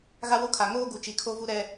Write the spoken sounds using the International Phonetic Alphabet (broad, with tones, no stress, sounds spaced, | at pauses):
ɣ a˦ w o˦ kʰ a˨ ŋ oː˦ ɡ u˨ t͡ʃ i˨ kʰ o˦ v u˦ ɾ ɛ˦